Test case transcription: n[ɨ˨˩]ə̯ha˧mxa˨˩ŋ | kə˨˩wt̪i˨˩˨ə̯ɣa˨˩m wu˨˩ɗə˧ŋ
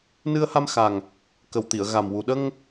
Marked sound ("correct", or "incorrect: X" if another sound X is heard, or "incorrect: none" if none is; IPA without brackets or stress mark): incorrect: ɨ˧